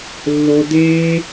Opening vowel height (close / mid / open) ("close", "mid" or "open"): mid